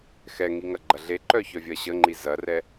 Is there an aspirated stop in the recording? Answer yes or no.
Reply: no